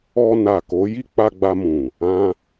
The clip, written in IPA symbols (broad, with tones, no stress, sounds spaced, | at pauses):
ɔ˧ n a˨ k o˨˦ j i˦ k͡p a˧ ɡ͡b a˧ m ũ˨ | ã˧